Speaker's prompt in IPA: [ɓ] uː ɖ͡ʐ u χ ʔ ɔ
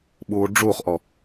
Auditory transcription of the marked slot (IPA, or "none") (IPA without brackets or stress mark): ɓ